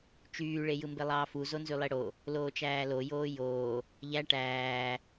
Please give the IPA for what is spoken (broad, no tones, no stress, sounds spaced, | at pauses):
t͡ʃ yː ɭ e j ɯ m b e lˠ ɑː f u z o n z y lˠ e ɽ o | l oː t͡ʃ æː l o j oː j oː | ʎ æ ʈ æː